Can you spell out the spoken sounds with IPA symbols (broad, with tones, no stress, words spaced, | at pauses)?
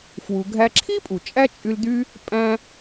fwu˨ɡʱæ˦ ǁʰi˥pʼu˩t͡ʃʼæ˦ t͡ʃʼy˦ld̪y˥ | pʼæ̃˦